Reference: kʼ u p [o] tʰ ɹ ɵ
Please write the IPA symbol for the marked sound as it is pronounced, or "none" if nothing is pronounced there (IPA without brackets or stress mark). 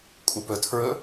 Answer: ɵ